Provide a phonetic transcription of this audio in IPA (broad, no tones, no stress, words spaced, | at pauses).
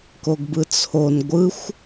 koɡbɯt͡sʰon ɡʷɯxʷ